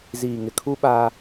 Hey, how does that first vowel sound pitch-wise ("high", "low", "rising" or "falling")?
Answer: low